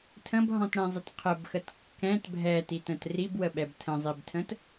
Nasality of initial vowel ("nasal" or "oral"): nasal